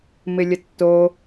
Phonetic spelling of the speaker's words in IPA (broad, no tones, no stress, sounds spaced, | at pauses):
m ɪ lʲ ə tː o